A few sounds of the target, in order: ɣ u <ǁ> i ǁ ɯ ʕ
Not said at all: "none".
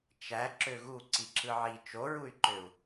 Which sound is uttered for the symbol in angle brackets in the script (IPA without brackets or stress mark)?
ǀ